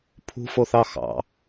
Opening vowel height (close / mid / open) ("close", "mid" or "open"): close